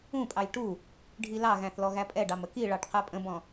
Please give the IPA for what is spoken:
ũ pʼ ɑ j ʈ u | ɖʱ i l ɑ ɣ æ̃ θ l ɔ ɣ æ pʼ ɛ ɖ ɑ m ə k i ɭ ɑ ʈ q ɛ pʼ ə̃ b ɔ̃

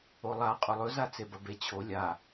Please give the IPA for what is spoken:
o lˠ a qʼ ɵ lˠ ɵ z a t͡s e b ɐ b e t͡ɕʰ o lʲ a

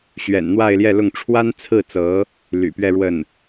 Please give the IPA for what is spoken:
ɕ ɥ ɛ̰˨˩ n n̪ w a˥˧ ɪ̯ l j ɛ˥˧ l ʊ˥˩ ŋ ʈ͡ʂʰ w a˥ n t͡sʰ ɹ̩˥˩ t͡s ɤ˧˥ | l y̰˨˩ p ɥ ɛ˥˧ ɻ w ə˥˩ n

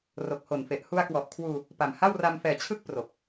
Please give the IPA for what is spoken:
r o˨˩ k̚ h o˨˩ n f e˨˩ ʔ h u˧ a̯ k w ɔ˨˩ ʔ kʰ w uː˧ | p a˨˩ m h a˥˩ w r a˧ m f ɛː˨˩ t͡ɕʰ ɯ˦˥ k̚ p r o˨˩ k̚

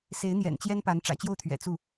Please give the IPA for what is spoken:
s e˧˥ ɪ̯ n̪ j ɛ̰˨˩ n t͡ɕ j ɛ˥ n p a˧˥ n ʈ͡ʂ ä̰˨˩ t͡ɕ j o˥˩ ʊ̯ t̪ʰ ɥ ɛ̰˨˩ t͡s u˥˩

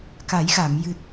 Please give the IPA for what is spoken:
k a˨˩˦ j x a˨˩˨ m j ɨ˨˩ t̚

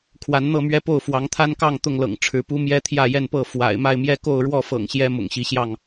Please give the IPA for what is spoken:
kʰ w a˨˦ n n̪ ɤ˥˨ m ɥ ɛ˦ p o˥˨ ʊ̯ f w ɑ˨˦ ŋ t̪ʰ a˦ n k ɑ˥˨ ŋ t̪ ʊ˥˨ ŋ l ɤ̰˨˩ ŋ ʈ͡ʂʰ ɻ̩˨˦ p u˦ m j ɛ˦ t̪ʰ j ä˥˨ j ɛ˥˨ n p ɤ˥˨ f w a̰˨˩ ɪ̯ m a˥˨ ɪ̯ m j ɛ˦ k o˥˨ ʊ̯ ɻ w ɔ˥˨ f ɤ̰˨˩ ŋ ɕ j ɛ˦ m ʊ̰˨˩ ŋ ɕ i˨˦ ɕ j ɑ˥˨ ŋ

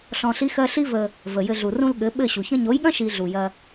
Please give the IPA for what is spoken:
ɬ ɔ̃˧ ɬ i˦ x ɜ˦ ɬ i˦ v ə˧ | v ə˨ j ɘ˧ ɮ u˨ r ũ˧ l ɠ ɘ˨˦ ɓ ɘ˦˨ ɕ u˨ ç ɐ̃˦ ɲ o˨˦ j ɠ ɐ̃˦ ʃ i˧ ɮ u˨ j ɐ˧

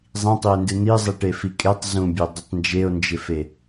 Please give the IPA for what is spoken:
zˤ ĩ tˤ i e̯ n d ɨ n̪ i zˤ i ʈ e f i kʼ e tˤ z ũ bʲ e dˤ ɨ tˤ n d͡ʒ e o̯ n d͡ʒ ɪ f e

